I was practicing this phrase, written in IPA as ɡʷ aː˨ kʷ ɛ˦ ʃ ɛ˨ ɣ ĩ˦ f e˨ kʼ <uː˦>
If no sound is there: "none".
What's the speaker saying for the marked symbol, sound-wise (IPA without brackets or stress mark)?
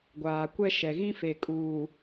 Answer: uː˨